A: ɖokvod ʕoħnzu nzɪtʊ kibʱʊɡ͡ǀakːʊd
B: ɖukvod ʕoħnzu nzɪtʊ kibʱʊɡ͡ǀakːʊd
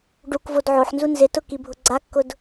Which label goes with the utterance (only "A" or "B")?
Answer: B